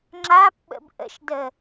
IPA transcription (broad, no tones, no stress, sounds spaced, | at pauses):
ŋ͡ǁ a p ɓ ə̰ b ʔ ə̰ ʃ d ə